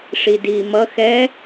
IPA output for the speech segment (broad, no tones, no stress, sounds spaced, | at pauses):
ʂ i d iː m ʌ x ɛ